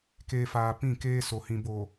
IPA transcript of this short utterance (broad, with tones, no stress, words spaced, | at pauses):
keː˨ faː˨pĩ˦˨ keː˦ so˨hĩ˨ boː˨